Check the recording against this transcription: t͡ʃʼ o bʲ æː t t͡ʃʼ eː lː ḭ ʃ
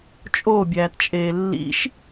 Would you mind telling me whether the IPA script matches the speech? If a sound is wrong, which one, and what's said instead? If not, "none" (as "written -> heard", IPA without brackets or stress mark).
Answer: none